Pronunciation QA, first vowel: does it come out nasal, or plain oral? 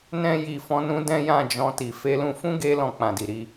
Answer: nasal